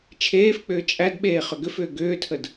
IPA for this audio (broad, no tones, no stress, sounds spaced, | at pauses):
t͡ʃʰ eː f k͡p ʏː t͡ʃʼ æ d ɓ eː χ ʏ ɡ ʏ f ʏː ɡ ʏː tʰ ə d